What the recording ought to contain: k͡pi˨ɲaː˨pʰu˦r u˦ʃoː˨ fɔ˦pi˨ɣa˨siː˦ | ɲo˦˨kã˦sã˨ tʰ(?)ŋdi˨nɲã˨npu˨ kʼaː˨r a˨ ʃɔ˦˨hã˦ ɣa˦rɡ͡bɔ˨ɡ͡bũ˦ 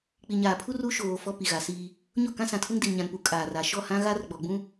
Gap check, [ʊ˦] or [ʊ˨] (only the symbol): ʊ˦